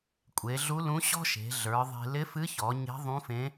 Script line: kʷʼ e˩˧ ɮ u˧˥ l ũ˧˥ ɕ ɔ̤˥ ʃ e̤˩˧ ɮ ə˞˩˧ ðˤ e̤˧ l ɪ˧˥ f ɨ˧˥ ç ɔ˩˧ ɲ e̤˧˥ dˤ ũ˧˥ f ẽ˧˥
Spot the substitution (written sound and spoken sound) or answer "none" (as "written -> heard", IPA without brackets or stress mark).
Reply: dˤ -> ðˤ